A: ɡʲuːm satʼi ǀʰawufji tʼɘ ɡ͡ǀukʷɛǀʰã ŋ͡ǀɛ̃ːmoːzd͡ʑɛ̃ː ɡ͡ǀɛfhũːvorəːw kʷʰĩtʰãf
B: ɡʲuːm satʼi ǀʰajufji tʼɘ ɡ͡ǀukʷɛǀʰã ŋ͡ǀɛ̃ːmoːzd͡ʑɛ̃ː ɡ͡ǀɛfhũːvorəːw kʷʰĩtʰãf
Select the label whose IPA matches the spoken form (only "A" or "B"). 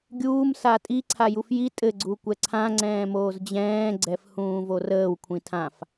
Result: B